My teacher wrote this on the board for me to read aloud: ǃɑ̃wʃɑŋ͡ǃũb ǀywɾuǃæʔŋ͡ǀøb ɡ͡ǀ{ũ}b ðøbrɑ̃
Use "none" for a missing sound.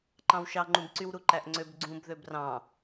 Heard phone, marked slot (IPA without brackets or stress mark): ũ